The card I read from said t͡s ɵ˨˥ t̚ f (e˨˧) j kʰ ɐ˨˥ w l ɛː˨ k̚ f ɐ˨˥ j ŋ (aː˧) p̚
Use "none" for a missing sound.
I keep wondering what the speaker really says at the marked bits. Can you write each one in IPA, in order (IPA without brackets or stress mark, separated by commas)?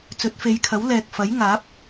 e˨˧, aː˨˥